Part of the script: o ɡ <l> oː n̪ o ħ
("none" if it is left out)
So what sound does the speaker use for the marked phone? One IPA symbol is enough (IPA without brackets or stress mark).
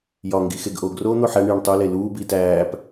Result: r